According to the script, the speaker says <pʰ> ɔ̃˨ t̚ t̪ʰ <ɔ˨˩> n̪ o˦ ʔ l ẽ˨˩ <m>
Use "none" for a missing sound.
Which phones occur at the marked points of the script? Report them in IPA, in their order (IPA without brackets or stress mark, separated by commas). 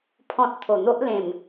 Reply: pʰ, o˨˩, m